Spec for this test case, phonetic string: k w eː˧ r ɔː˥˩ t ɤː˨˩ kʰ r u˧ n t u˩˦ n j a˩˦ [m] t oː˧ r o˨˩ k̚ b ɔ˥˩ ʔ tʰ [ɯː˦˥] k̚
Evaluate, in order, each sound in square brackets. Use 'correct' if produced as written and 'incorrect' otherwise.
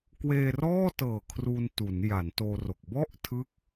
incorrect: n, incorrect: ɯ˦˥

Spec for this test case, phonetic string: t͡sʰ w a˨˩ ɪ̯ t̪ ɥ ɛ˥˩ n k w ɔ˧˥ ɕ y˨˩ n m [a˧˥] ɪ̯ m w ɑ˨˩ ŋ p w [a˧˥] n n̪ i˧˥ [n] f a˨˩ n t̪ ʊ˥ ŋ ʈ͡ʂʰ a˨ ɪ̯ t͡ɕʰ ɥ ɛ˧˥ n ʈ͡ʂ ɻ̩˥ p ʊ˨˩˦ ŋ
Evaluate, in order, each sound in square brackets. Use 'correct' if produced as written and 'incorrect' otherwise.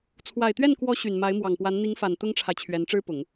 correct, correct, incorrect: ŋ

